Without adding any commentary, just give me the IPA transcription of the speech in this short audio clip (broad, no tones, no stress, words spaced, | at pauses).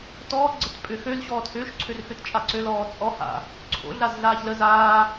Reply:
tɔːɡ͡ǀət pʼʏ xøzɕɔːt hʏːʃǀʰørxøt t͡ʃʼaǀølɔː t͡sʼɔ ha̰ | ǀʰo̰ɮaz ɮaːçlə zaː